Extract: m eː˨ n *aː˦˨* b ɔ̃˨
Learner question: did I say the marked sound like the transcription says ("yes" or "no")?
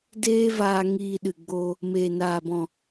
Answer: no